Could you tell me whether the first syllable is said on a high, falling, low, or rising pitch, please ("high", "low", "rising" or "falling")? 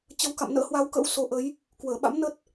rising